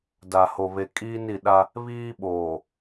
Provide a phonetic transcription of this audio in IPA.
d a˨ h o˨ β e˨ kʼ iː˦ n i˨ ɗ a˦ | β iː˦ ɓ oː˨

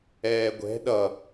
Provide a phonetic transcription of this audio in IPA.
ɛː ɡʷ ɛ̤ ɗ ʌ

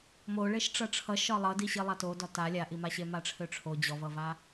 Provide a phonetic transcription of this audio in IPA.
m o ɭ e ʃ ʈ͡ʂ ʌ ʈ͡ʂʰ ʌ ʃ ɒ lˠ ʌ d i ɕ i lˠ a t o d ɒ t a lʲ a ʔ i m a ɕ e m a ʈ͡ʂʰ ø ʈ͡ʂʰ o d͡ʑ ɔ v ʌ v a

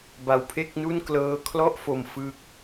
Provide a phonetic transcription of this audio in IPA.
b a˧ w pʰ e˥˩ k̚ n u˥˩ n k l ɤː˦˥ kʰ l ɔ˥˩ ʔ f o˧ m f ɯ˦˥ k̚

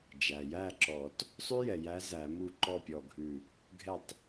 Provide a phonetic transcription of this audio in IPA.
d͡ʒ æ˩ j æ˥˩ ǁ ɔ˨˩˦ t | sˤ ʉ˦ j ɛ˩ j æ˨˦ z æ˨˩˦ m u˥˩ ǃ ɔ˥˩ pʲ ɔ˧˩ ɡʱ ʉ˧˩ | ɡʱ ɛ˧˩ tˤ

